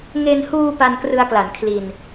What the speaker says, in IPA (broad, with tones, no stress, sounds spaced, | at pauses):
ŋ e˧ n h uː˧ p a˧ n k r ɯ˧ a̯ k l a˩˦ n kʰ l i˧ n